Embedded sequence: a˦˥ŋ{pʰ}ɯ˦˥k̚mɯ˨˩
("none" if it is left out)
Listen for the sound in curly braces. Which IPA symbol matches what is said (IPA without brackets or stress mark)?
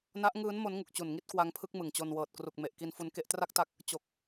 pʰ